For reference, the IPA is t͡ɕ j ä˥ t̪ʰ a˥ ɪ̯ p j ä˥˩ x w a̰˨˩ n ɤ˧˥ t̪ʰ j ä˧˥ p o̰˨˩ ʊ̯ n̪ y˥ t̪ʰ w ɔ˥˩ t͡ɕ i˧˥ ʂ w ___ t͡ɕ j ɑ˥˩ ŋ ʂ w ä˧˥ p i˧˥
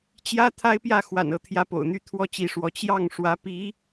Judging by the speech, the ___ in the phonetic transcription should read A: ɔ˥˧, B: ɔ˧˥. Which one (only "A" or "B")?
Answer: B